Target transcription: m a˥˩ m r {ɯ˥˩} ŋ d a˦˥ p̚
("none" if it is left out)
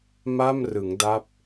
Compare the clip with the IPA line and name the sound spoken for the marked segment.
ɯ˩˦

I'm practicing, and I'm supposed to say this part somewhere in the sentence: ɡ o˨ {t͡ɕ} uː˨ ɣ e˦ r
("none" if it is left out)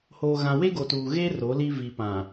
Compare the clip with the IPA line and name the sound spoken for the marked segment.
t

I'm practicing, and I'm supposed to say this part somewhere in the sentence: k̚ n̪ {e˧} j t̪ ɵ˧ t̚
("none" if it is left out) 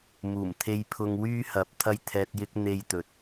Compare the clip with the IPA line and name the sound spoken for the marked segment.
e˥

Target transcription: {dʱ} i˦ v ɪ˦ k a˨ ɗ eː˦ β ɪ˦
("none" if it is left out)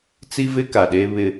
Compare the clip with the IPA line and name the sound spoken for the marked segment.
t͡s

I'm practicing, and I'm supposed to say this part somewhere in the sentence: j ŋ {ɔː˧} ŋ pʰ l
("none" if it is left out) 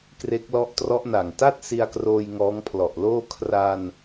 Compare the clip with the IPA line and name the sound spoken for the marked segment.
ɔː˦˥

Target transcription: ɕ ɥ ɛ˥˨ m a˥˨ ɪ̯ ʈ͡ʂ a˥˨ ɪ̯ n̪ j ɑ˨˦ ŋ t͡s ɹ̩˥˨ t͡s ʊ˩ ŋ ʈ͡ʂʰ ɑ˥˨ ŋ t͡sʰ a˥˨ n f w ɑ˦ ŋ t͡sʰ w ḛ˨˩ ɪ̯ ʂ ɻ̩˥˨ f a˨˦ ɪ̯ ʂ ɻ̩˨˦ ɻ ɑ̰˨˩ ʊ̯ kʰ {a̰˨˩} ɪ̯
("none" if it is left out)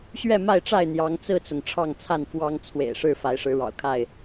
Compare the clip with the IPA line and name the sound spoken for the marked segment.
a˥˨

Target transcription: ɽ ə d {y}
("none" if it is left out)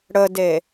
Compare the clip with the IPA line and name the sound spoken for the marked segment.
e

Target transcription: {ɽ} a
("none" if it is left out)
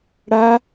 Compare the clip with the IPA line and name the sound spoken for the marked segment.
ɽ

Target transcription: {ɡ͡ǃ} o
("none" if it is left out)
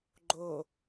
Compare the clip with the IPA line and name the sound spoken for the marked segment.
ɡ͡ǃ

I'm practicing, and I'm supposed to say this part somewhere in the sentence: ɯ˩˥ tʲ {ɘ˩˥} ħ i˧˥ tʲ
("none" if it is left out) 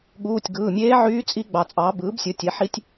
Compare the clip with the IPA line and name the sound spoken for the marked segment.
e˩˥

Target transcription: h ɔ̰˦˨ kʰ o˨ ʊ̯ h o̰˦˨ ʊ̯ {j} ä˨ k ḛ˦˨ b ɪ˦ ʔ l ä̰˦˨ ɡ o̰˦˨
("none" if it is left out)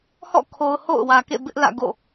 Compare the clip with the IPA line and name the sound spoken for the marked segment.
w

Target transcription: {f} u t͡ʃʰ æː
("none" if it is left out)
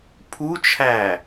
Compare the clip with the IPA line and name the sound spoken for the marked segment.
pʰ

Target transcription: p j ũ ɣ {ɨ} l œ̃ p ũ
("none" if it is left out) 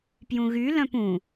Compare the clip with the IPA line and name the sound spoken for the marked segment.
y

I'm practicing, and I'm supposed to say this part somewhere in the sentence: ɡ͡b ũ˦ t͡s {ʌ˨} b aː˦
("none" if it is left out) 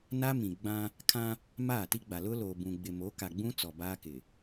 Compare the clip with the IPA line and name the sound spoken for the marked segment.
ɔ˨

